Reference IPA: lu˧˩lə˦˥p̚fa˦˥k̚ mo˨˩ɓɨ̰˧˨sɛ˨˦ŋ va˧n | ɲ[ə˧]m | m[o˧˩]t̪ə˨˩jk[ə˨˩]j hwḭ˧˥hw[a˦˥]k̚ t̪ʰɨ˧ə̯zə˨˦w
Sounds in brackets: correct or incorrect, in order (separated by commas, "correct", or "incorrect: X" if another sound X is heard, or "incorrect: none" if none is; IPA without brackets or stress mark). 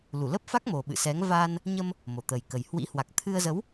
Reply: correct, correct, correct, incorrect: a˨˩